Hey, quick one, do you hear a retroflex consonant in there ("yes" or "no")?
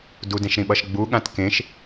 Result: no